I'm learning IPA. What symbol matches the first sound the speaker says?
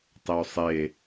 tˤ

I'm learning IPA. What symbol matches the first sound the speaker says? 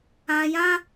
ã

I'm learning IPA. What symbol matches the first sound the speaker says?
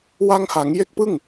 w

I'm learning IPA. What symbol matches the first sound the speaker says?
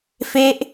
f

